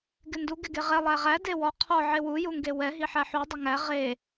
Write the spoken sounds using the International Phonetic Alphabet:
ɡɪndu ɡɪɡeʁɛ lˠæʁæ dewɔ qʰɔ ʕewu juŋɡewɛ ɦiħæħu dˤɪŋæ ʁe

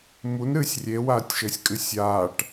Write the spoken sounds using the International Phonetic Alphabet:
munɾɨːsʲ rʲewaːtʲʃɘːsʲkʼɨ sʲaːʈ

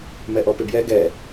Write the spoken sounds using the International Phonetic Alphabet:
mɛʔɔpɪbjɛ ɡɛ

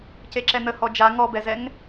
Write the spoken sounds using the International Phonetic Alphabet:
ceǁɛnə hɔd͡ʒa ŋɔbɛzɛŋ

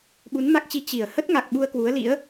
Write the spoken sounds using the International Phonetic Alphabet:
ɓu˨˦nma˦˥k̚t͡ɕi˧ t͡ɕi˧˩ə̯ hə˦˥t̚ŋa˨˩k̚ ɓu˧ə̯kwu˨˦ə̯lḭ˧˥ə̯

